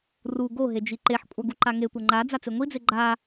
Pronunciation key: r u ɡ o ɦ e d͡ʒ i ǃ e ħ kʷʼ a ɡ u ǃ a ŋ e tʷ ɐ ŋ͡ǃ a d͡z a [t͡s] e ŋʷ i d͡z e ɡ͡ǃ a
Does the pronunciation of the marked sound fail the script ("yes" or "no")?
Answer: no